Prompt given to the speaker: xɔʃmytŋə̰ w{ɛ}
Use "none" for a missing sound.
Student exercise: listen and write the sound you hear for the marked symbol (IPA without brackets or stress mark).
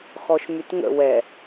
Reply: ɛ